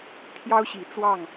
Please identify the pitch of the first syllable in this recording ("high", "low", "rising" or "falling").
high